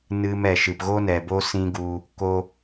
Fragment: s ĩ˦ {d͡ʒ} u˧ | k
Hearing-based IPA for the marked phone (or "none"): ɡ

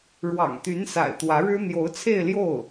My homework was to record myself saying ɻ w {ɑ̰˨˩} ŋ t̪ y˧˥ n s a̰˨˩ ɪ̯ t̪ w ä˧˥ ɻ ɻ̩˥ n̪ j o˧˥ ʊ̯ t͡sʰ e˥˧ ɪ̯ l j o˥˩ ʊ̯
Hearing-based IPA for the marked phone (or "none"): ɑ̰˨˩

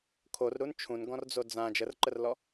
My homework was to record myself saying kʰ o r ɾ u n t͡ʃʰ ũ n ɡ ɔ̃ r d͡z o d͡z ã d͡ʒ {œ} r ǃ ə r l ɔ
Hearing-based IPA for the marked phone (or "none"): ə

